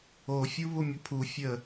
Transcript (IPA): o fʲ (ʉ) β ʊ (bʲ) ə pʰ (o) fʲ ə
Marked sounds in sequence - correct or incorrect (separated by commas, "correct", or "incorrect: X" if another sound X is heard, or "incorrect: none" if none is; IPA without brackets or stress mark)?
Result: incorrect: u, incorrect: mʲ, incorrect: u